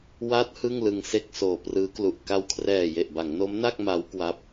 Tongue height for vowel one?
low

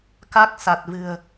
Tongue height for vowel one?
low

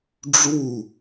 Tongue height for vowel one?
high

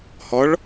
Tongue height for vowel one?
mid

